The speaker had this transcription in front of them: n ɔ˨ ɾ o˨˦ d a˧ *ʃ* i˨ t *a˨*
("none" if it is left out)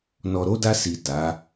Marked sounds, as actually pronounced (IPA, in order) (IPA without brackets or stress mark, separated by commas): s, a˨˦